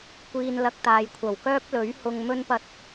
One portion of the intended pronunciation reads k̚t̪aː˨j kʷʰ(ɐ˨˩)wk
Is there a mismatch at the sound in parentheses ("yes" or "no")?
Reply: no